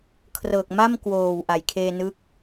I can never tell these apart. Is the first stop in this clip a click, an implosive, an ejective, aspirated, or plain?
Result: aspirated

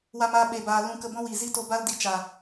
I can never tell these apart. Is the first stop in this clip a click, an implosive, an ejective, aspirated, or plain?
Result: implosive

